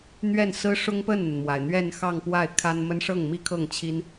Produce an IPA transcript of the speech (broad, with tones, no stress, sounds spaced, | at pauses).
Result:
n̪ ɥ ɛ˥˩ n s ɹ̩˥ ʂ ʊ˥ ŋ p ə˥˩ n n̪ ə˩ n m w a˩ ɪ̯ n̪ ɥ ɛ˥˧ n x ɑ˥˧ ŋ p w a˥˩ ɪ̯ kʰ a˥ n m ə˥ n ʂ ɤ˥˩ ŋ m i˥ kʰ ɤ˥˩ ŋ t͡ɕʰ i˥ n